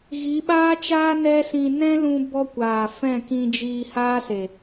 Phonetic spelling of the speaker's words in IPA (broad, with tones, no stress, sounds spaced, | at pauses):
ɣ i˨˦ ɓ aː˦ t͡ʃ aː˦ n ɛ˦ s ĩ˧ n ɛ̃˦ l ũ˧ b ɔ˧ kʷ aː˨ f ɛ̃˦˨ k ĩ˧ d͡ʒ iː˧ h aː˦ s e˨